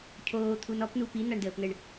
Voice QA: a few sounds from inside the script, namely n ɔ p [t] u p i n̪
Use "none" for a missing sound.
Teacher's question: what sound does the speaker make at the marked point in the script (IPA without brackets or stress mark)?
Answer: n